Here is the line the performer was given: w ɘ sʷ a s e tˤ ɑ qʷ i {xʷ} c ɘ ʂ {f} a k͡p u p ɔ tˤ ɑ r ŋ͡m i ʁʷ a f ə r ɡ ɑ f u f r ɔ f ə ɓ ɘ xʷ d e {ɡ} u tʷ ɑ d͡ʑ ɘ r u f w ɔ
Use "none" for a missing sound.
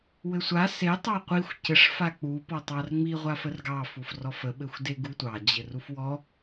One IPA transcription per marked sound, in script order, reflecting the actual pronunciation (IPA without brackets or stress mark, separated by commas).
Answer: xʷ, f, ɡ